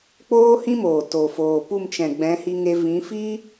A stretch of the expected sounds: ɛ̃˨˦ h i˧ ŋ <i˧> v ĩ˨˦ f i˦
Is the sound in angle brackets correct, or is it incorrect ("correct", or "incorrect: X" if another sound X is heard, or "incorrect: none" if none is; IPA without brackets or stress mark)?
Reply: incorrect: e˧